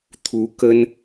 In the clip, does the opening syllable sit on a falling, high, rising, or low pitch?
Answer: rising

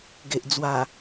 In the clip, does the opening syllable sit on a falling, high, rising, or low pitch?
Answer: low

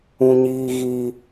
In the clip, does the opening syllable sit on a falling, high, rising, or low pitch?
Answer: high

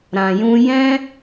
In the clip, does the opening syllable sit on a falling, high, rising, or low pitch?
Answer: low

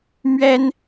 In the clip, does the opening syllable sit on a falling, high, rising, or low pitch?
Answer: high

